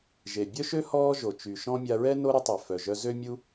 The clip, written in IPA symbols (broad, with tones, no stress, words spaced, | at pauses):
ʒe˩ bʲœ˥ʃø˥ hɔː˥ʒo˩ t͡ʃy˩ʃɔ̃˥ mʲa˧ɹɛ˥ no˥ɾə˥tˤœ˩ fœ˩ʒœ˧zø˥ mʲu˥